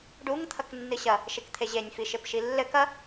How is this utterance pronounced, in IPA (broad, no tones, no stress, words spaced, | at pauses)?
ɖuŋ t̪ʰɐknːɨɕɐ | ʃekt̪ʰeʑenʲ fiʃepʃilːɘk ɐ